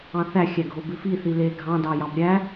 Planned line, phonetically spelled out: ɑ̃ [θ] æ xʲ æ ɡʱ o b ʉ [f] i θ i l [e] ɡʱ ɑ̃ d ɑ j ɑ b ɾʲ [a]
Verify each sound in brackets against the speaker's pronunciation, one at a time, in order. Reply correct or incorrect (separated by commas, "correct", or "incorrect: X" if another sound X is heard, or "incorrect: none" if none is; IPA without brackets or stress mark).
correct, correct, correct, incorrect: æ